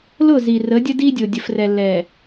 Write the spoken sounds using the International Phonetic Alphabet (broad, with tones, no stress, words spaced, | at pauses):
lʊ˦˨zi˨ rə˨˦dʲə˦di˦dʲo˨ dʲə˨frɛ˨lːɛ˨